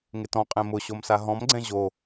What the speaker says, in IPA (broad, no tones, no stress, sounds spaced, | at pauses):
ŋ ɪ t ɔ̃ qʼ ẽ m ʊ ɕ o m s a ɦ ɔ̃ m ɡ͡ǀ ɛ̃ ʑ o